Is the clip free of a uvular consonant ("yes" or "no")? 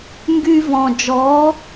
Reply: yes